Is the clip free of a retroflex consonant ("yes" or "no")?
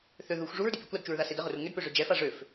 no